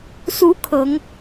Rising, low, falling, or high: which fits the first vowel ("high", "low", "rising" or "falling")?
rising